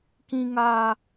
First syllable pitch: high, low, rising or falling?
high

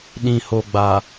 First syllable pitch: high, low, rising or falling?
low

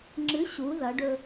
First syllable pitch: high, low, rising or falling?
rising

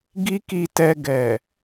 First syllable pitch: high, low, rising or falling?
high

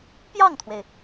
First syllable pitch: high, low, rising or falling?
falling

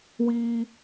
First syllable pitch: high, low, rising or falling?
high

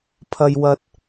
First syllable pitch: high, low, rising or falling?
high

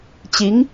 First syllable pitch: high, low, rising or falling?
rising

